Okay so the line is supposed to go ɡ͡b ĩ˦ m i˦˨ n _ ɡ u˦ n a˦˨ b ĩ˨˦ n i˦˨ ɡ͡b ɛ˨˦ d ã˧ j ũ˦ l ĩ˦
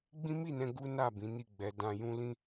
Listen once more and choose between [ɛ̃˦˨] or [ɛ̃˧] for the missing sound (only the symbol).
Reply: ɛ̃˧